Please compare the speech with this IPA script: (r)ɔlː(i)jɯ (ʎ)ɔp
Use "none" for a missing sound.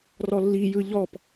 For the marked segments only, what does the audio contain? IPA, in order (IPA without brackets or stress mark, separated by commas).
r, i, ʎ